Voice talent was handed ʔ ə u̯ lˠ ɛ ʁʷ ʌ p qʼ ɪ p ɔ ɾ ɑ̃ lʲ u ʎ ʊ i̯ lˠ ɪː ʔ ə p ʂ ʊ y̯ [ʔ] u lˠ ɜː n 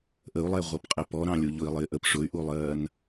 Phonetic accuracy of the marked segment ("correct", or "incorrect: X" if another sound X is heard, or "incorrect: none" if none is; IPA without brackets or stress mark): correct